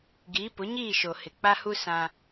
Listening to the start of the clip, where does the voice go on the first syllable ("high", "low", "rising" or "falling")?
rising